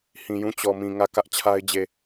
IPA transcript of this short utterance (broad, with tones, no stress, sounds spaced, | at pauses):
h ĩ˨ j ũ˦˨ t͡ɕ ɔ˨ m ĩ˨ ŋ ä˦˨ k ä˦ ʔ t͡ɕʰ a˦ ɪ̯ d͡ʑ e˨